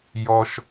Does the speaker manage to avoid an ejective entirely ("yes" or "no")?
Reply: yes